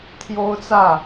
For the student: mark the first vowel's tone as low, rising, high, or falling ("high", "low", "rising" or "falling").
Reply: high